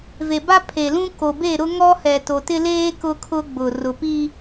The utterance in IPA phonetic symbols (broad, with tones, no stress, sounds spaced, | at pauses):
v e˨ b a˦ pʰ e˨ l ũ˦ k o˨ b e˦˨ ɾ ʊ˦ ŋ ɔ˦ h ɛ˨ t o˨ t ɪ˦ l eː˦ k ʊ˦ kʰ ʊ˦ ɡ͡b ʊ˨ r ʊ˨ p i˦